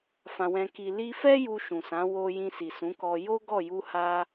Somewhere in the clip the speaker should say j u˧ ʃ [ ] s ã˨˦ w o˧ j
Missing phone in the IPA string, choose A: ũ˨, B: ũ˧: A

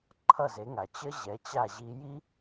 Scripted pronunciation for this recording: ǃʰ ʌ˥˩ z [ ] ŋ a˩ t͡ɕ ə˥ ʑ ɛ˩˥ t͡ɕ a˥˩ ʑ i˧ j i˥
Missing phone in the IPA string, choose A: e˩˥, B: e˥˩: A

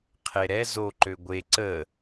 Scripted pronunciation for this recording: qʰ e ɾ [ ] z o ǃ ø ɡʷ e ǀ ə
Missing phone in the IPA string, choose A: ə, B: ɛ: B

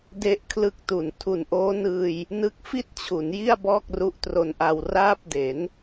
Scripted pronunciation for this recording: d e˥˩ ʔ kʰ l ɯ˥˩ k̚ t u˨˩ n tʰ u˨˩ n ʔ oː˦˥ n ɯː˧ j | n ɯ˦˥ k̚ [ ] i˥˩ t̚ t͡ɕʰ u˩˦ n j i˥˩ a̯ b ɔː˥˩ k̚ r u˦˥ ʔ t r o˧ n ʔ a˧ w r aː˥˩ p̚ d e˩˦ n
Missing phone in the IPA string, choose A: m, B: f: B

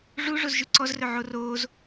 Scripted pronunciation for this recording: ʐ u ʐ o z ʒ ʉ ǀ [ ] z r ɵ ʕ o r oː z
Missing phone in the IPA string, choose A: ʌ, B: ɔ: B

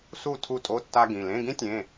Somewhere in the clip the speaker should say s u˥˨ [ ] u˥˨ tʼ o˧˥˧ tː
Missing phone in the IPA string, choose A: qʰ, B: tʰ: B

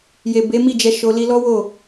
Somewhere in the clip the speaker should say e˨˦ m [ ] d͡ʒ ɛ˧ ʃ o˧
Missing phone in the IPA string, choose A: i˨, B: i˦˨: B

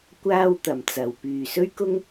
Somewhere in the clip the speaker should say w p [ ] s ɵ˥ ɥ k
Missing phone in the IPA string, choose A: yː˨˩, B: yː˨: B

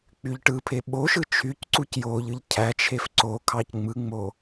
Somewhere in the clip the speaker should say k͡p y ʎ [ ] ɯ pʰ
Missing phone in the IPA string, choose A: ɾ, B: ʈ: B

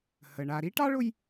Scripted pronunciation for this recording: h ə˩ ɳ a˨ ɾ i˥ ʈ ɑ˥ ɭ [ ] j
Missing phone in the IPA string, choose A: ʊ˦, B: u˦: A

